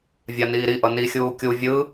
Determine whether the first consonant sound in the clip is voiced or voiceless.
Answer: voiced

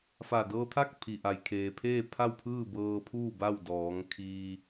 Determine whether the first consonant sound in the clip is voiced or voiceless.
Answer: voiceless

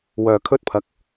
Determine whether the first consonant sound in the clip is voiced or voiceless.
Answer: voiced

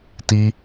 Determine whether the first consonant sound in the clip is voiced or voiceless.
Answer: voiceless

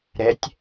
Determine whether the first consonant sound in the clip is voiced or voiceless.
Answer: voiced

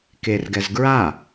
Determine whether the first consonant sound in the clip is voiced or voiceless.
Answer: voiceless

